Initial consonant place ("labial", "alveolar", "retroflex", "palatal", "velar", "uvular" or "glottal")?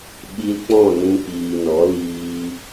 labial